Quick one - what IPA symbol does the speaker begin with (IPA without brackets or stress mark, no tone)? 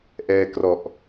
ʔ